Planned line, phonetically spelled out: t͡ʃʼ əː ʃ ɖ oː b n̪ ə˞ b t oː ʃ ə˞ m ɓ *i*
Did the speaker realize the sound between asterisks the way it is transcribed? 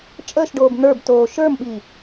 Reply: yes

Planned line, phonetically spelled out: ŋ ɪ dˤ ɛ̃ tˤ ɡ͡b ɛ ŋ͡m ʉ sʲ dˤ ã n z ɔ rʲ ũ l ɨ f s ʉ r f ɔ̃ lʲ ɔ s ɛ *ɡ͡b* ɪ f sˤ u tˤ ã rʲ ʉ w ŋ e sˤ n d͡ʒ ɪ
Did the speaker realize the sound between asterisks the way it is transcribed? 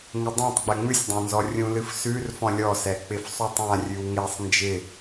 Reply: no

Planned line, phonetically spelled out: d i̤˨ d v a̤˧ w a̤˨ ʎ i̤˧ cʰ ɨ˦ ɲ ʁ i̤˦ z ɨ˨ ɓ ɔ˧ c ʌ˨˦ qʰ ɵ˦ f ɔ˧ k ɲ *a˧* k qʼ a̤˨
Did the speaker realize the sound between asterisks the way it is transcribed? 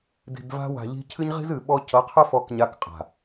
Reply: yes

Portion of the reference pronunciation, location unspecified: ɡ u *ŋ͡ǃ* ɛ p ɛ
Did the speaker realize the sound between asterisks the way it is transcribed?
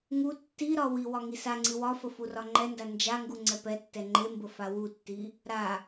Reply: no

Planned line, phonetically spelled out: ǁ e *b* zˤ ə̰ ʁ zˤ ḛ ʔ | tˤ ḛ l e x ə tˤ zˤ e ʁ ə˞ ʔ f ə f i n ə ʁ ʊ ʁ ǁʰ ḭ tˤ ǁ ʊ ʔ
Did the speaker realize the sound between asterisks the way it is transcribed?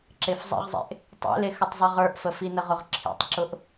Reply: no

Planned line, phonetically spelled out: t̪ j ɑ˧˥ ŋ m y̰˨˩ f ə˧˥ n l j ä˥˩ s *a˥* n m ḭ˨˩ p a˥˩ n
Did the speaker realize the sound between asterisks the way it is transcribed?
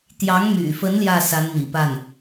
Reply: no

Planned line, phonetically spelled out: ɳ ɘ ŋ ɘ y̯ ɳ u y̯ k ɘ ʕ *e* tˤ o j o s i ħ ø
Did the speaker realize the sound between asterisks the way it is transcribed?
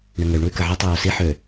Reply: no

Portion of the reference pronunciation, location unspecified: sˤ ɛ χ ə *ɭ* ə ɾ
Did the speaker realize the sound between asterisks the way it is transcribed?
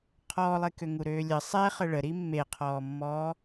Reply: yes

